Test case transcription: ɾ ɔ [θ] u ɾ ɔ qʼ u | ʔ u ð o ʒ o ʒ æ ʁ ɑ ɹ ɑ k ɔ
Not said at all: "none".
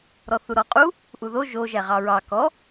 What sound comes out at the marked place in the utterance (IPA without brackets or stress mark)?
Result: θ